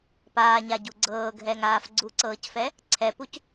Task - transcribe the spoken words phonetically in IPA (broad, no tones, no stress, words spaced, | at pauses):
paːɲaɟu ɡ͡ǀɤːɡʱɛŋaːf ɡ͡ǀuǀɤːcfɛ | ǀʰɛpuc